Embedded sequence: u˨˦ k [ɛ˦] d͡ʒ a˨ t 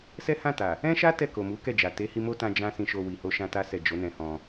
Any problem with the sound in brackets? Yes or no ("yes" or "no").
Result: yes